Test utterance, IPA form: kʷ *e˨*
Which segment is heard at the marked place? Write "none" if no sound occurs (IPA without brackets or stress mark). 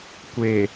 e˨